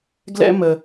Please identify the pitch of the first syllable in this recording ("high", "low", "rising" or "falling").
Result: high